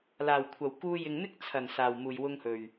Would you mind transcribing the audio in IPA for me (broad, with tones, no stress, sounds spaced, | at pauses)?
l aː˨˩ w kʷʰ ɐ˨˩ w k uː˧ j ɪ˨ ŋ n̪ ɪ˥ k̚ t͡sʰ ɐ˨˩ n s aː˨˩ w m uː˨˩ j w ʊ˧ ŋ h ɵ˨˩ ɥ